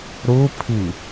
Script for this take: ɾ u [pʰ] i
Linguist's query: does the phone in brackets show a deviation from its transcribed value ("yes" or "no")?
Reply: no